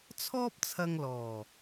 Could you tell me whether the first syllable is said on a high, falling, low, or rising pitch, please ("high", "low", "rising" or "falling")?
high